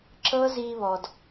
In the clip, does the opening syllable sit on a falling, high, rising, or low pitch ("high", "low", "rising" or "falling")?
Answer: high